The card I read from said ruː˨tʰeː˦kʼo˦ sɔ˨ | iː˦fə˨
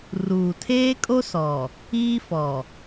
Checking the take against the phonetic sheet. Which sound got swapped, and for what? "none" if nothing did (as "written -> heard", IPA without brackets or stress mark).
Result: ə˨ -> ɔ˨